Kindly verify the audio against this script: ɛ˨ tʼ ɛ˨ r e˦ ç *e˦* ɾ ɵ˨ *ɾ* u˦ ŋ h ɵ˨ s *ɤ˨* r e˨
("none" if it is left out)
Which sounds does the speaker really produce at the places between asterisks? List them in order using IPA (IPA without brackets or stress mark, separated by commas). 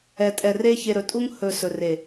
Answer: e˨, tʼ, ɵ˨